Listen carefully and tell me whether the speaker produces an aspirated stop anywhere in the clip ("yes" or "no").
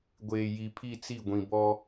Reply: yes